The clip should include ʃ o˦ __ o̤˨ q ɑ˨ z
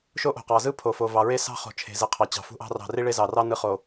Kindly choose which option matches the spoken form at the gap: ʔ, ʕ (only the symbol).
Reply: ʔ